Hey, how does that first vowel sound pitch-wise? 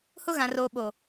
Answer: high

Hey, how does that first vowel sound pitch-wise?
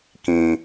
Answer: low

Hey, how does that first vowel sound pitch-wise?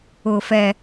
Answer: low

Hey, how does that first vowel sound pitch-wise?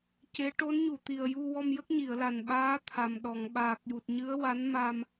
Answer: rising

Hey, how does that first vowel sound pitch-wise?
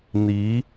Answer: rising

